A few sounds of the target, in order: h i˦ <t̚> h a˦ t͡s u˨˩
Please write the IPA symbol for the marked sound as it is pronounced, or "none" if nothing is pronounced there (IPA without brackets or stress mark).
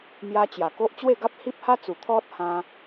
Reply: p̚